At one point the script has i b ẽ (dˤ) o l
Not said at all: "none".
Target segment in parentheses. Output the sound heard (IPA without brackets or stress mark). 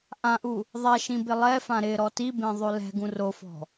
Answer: ðˤ